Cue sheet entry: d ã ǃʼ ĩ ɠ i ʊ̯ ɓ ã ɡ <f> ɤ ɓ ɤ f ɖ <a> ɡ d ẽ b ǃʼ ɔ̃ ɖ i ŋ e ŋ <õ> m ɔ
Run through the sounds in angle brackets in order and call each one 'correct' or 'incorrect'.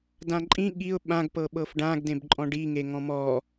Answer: incorrect, incorrect, incorrect

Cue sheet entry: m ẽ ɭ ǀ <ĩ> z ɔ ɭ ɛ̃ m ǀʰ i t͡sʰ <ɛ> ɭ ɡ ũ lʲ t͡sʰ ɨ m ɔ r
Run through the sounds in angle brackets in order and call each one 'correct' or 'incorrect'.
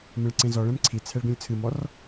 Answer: incorrect, correct

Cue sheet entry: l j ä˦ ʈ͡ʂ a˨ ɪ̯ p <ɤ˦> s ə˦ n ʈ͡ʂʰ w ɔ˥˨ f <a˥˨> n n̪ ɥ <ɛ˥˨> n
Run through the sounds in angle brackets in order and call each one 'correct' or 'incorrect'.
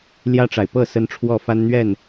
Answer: incorrect, incorrect, correct

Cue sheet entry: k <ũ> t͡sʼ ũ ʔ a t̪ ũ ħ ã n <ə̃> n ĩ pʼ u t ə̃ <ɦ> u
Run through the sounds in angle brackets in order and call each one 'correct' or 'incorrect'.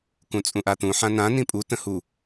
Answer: correct, incorrect, incorrect

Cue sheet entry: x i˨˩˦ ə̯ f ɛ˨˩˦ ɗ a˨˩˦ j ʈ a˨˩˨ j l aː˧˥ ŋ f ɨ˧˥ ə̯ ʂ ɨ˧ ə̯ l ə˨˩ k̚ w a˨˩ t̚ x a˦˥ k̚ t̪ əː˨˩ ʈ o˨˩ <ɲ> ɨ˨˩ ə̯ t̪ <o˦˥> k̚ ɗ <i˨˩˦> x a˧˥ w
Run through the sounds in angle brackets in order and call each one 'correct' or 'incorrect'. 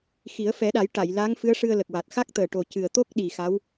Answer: incorrect, correct, incorrect

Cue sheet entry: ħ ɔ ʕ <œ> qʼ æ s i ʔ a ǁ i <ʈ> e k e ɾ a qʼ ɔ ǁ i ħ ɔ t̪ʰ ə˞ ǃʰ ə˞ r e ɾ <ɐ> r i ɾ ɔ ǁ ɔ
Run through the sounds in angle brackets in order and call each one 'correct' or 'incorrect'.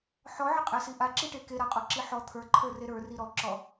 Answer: incorrect, correct, incorrect

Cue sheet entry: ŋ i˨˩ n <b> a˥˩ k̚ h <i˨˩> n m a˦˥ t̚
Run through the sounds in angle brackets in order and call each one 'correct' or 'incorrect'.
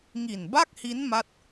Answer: correct, incorrect

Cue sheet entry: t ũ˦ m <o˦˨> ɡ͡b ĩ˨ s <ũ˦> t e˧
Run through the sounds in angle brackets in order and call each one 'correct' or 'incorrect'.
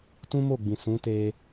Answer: correct, incorrect

